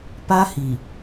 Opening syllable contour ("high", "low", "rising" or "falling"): high